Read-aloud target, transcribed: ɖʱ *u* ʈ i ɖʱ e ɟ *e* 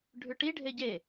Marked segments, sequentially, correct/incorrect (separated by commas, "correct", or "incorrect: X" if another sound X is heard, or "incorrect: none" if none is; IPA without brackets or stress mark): incorrect: ʉ, correct